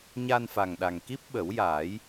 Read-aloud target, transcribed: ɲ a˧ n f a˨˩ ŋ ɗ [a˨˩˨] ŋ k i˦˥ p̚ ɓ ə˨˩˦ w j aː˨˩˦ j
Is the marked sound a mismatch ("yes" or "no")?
yes